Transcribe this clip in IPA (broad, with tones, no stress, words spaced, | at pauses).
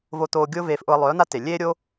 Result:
vo˧t̪oː˧ɡʲʊː˦ veː˧fʔʊ˧ə̯lˠœː˨˦n̪a˦ te˨ lʲeː˦ɾʲo˦